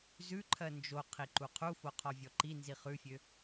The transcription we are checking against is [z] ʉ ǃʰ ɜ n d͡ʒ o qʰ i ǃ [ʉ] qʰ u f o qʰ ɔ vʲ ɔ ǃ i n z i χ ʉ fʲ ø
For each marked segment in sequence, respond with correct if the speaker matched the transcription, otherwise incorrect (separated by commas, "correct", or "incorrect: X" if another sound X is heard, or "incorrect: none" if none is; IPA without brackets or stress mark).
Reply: correct, incorrect: u